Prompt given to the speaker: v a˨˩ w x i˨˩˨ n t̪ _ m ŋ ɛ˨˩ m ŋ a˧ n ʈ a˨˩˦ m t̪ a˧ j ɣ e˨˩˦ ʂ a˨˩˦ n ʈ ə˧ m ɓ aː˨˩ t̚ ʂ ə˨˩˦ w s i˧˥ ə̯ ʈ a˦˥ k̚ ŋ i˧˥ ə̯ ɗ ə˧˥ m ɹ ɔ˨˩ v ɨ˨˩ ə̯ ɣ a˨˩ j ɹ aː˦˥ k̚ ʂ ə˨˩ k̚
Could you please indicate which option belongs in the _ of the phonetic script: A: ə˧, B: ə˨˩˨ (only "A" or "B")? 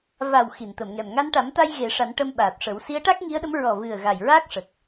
B